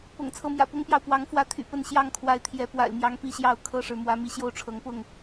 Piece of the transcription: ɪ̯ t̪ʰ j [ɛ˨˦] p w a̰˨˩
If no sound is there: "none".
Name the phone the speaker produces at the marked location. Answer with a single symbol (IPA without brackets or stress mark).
ɛ˨˦